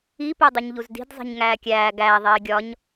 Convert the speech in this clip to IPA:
i pedˤuɲʎuzdi̤d zˤi̤ɲŋæːkʲæː ɡæ ðˤiːɡʲɒɲ

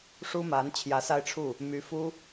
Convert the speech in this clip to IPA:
ʂu˥ma˧˥n t͡ɕʰjä˧˥sa˥˧ɪ̯ʈ͡ʂʰu˥˩ | my˧˥fu˥

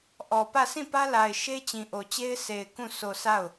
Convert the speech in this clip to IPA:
ʔɔ˨pä˦˨ sʰĩ˦˨pä˦la˨ɪ̯ ʃe˦ t͡ɕĩ˨ʔo˨t͡ɕe˦ɪ̯ sʰe˨ɪ̯ kũ˦˨ so˨ sa˦˨ʊ̯

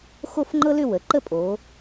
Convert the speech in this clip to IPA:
xo˥˧fŋ͡ǃɤ˥lʏ˥˧ wə˩˧ǃə˥ pʼo˩˧

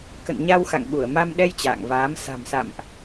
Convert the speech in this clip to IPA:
kə̰˧˨nɲa˧wxa̰˧˨ŋ ɓu˧˩ə̯ma˧mɗɛ˧j t͡ɕa̰ː˧˨ŋvaː˨˦m sa̤˨˩msa̰˧˨mʔ

